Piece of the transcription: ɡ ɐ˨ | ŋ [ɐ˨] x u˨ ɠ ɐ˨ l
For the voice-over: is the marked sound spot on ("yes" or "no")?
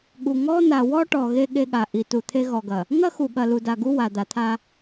no